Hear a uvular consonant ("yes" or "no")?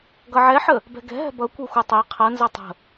yes